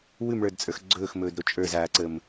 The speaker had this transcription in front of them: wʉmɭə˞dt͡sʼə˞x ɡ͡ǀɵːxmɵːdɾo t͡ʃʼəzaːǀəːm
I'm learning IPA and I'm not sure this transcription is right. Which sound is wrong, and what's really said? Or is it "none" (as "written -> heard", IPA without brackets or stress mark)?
ə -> ə˞